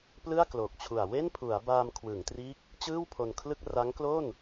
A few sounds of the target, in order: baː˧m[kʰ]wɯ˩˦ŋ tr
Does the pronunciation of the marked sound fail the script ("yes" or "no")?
no